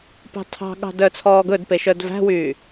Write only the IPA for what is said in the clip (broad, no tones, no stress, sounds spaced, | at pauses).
p ɑ̤ tʰ ɑ̤ ɠ ɑ̤ d œ t͡sʰ ɔː ɡ ɵ d p e ʃ œ d v æ̤ w yː